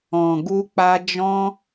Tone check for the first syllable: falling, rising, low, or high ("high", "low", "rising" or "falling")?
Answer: low